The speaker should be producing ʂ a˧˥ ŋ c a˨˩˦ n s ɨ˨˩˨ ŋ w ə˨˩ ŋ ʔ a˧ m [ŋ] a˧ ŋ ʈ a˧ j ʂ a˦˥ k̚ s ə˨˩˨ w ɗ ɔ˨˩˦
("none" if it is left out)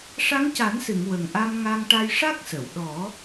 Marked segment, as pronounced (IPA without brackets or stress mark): ŋ